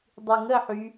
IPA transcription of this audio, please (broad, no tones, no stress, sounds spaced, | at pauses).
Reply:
dˤ y ŋ ə ħ y